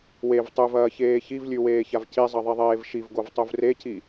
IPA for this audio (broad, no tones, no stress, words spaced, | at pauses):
wev tˤʉvɐːçeː çivlʲʉweːçav cizˤɐðˤiðˤeːv ʃivɡovtˤuv reci